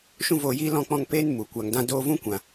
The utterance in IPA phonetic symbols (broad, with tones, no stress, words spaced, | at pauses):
ʃũ˦voː˧jiː˦ lɔ̃˧k͡pɔ̃˧ŋ peː˦nmu˨ kʷa˨ŋdã˧ doː˧vũ˦kʷã˨